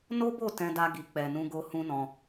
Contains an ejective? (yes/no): no